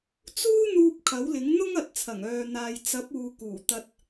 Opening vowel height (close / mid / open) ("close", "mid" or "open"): close